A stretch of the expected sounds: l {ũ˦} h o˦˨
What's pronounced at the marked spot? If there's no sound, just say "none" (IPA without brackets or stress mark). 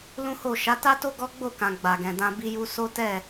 ũ˦